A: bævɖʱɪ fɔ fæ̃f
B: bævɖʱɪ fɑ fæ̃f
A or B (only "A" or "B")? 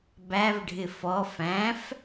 A